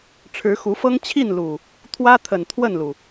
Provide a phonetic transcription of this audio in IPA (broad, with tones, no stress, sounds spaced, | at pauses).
ʈ͡ʂʰ ɻ̩˨˦ x u˨˦ f ɤ˦ ŋ t͡ɕʰ i˥˨ n l u˨˩ | t̪ʰ w ä˦ t̪ʰ ə˨˩ n t̪ʰ w ə˥˨ n l u˩